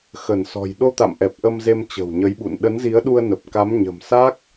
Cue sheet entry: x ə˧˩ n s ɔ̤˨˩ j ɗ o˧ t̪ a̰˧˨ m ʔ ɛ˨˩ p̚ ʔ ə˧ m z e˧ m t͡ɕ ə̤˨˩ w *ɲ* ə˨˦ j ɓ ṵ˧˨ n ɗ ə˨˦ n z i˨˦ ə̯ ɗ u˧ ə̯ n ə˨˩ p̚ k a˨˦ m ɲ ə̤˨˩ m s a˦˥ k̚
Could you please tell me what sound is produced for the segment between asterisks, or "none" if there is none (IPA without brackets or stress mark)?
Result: ɲ